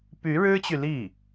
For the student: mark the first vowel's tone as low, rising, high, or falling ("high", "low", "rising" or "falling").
rising